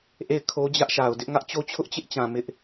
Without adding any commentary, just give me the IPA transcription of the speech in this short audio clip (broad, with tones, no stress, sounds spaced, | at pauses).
ʔ e˦˨ ɪ̯ kʰ o˦ d͡ʑ ä˦ ʔ ʃ a˨ ʊ̯ d ɪ˦ ʔ ŋ ä˦ ʔ t͡ɕ o˦ t͡ɕʰ ʊ˦ ʔ t͡ɕ ɪ˦ ʔ t͡ɕ ã˨ m ɪ˦ ʔ